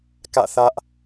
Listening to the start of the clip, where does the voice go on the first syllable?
falling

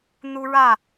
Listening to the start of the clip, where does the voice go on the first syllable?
high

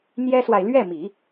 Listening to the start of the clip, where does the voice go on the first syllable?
high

